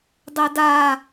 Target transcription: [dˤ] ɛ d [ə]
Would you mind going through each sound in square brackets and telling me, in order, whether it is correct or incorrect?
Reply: correct, incorrect: a

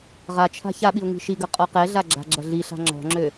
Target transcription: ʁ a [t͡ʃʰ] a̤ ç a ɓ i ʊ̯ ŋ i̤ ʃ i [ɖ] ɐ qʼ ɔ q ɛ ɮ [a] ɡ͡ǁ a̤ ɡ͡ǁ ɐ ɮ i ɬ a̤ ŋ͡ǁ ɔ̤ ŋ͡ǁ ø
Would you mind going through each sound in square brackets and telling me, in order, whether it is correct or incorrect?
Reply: correct, incorrect: ɡ, correct

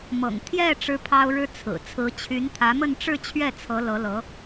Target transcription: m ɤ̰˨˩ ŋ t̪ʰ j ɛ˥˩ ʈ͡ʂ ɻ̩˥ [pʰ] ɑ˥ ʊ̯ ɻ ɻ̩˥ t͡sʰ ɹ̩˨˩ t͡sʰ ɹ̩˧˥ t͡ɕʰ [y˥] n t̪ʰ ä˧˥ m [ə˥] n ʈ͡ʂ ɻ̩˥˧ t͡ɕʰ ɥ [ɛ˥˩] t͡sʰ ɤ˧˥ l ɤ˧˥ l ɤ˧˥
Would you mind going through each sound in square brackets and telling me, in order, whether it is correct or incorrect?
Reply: correct, incorrect: y˧˥, incorrect: ə˥˧, correct

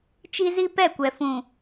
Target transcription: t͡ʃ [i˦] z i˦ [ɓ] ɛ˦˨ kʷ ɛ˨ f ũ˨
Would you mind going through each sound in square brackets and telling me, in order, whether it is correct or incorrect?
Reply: correct, incorrect: p

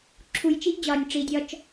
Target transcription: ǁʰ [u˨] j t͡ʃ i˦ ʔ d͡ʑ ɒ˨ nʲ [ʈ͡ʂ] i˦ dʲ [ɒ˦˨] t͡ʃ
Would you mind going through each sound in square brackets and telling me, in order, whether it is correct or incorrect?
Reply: correct, correct, incorrect: ɒ˦

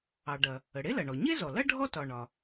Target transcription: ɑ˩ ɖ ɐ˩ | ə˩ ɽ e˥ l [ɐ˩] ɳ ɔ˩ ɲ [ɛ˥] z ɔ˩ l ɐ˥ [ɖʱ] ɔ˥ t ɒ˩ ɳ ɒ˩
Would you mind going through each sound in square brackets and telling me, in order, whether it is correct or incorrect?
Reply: correct, incorrect: e˥, correct

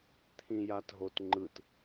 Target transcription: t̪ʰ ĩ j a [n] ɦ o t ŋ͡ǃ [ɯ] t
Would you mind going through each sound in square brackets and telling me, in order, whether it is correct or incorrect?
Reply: incorrect: t, correct

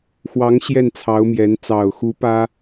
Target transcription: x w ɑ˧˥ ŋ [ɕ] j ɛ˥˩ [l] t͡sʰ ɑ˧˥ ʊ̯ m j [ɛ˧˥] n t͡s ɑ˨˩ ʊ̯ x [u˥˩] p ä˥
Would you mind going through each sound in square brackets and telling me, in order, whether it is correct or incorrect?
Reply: correct, incorrect: n, correct, incorrect: u˧˥

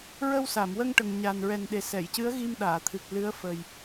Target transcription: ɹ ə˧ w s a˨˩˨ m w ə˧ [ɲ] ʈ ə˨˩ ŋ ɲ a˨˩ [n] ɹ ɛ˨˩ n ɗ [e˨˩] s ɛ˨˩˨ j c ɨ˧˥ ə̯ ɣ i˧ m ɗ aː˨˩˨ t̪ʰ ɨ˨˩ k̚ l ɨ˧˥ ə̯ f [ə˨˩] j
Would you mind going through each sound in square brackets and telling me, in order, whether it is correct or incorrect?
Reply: incorrect: ŋ, correct, correct, correct

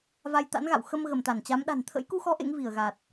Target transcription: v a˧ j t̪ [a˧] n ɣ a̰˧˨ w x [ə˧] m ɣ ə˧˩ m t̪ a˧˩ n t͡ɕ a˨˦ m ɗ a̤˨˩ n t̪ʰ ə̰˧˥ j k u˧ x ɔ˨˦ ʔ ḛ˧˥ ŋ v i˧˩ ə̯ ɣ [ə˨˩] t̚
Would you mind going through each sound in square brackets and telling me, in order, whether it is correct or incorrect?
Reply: incorrect: a̰˧˥, correct, incorrect: a˨˩

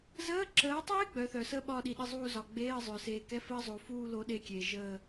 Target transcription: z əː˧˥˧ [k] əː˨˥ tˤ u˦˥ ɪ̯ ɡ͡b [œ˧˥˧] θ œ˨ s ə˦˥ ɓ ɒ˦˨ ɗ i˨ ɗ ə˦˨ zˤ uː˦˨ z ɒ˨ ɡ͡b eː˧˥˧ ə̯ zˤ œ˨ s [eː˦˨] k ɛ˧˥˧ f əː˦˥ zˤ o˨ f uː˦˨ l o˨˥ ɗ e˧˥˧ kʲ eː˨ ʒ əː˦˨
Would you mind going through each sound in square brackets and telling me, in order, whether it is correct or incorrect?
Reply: incorrect: ǁ, incorrect: œ˨˥, incorrect: eː˨

